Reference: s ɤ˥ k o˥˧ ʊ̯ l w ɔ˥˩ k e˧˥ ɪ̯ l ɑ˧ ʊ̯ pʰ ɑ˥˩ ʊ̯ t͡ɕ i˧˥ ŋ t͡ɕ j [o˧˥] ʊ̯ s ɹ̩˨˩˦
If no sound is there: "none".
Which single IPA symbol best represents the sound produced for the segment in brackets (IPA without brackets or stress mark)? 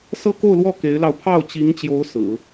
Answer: o˧˥